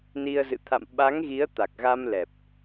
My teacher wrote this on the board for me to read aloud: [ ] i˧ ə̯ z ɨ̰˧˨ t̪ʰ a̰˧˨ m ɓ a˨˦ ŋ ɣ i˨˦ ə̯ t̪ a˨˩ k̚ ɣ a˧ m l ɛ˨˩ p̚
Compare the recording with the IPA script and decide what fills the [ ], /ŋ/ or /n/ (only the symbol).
n